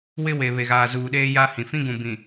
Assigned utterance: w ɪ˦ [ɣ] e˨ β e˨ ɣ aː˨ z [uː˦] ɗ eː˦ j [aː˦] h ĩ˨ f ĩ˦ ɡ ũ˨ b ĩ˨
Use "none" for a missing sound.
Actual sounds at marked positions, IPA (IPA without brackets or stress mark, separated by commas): w, uː˨, a˦